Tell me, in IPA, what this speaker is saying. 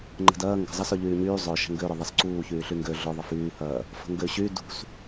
ŋ͡ǃ ə̤ d ɐː ŋ ɡ ə̤ zˤ ɐ s œ ʎ yː ɲ yː zˤ œ ʃ ə̤ ŋ ɡ ø ɾ œ ðˤ ɐ s ǀ uː ç yː ɬ y ŋ ɡ ø ɮ ʊ ðˤ ə f yː h ɐː | f ə̤ ŋ ɡ ø ɕ y d ṳ s

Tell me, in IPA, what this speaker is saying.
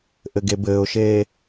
ʔ ɘ ɡ e b ɘː ʊ̯ ʃ eː

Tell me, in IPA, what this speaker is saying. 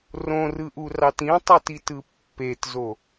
r õ r ɯ ʔ u r ɑ t ĩ tˤ u t i t ɯ pː e t z o

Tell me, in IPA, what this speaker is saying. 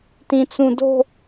t ĩ t͡s ũ d o̤

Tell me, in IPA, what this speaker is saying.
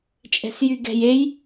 t͡ʃʼ ɛ̤ s j y ɡ ɛ̤ j e j

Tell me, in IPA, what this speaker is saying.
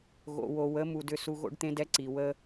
ɣ o̰˨ w o˨ w ə˨˦ m u˧ d ʏ˦ s u˦ ɣ o̰˦ ɖ t̪ ẽ˦ d ɛ˦ ǀ i˨ w ə˦

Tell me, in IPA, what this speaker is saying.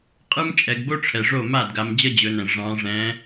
qʼ ɯ˥ m t͡ʃʼ ɛ˨˦ ɡ b o˥ ʈ͡ʂʰ ɛ˨ ʐ o˥˩ m a˥˩ d ɡ a˨˦ m d͡ʑ ʌ˥ d͡ʑ ɵ˨˦ n ɛ̃˨ ʐ ɑ̃˨˦ ʐ ɛ̃˨˦

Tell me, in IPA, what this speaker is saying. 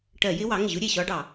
ʈ ɜ˧˩˧ j ɪ˦˥ w ɑ˩˥ ŋ ɪ˩ ʑ u˦˥ ɾʲ ɛ˩ ɕ ɒ˦˥ ɖ ɑ˧˩˧

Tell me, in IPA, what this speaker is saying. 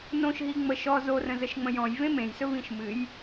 n õ ʃ ɦ i ŋ͡m ə ʃ ɔ z o r ə̃ z ə ʃ ŋ͡m ə̃ j ɔ̃ j v ẽ m ẽ j s ɵ v ĩ ʃ m ɨ j

